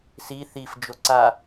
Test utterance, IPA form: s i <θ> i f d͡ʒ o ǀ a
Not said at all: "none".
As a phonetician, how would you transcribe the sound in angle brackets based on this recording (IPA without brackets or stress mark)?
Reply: θ